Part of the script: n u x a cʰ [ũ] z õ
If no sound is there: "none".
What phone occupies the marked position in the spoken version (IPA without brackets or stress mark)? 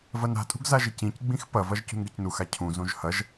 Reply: ũ